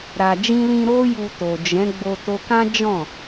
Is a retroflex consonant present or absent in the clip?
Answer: absent